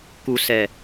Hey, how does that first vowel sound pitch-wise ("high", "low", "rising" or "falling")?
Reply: low